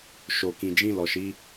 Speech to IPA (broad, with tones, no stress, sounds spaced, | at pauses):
ʃ o˨ k ĩ˨ d͡ʒ ĩ˧ l ɔ˨ ʃ i˨˦